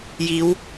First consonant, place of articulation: palatal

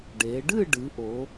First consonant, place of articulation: retroflex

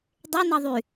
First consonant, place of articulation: alveolar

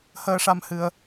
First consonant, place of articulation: glottal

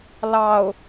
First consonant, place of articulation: alveolar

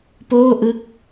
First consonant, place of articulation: labial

